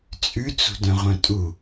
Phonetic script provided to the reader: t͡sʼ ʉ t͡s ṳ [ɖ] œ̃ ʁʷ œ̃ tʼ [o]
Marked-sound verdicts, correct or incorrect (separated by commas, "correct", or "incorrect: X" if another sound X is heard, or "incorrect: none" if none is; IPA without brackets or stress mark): incorrect: d, incorrect: u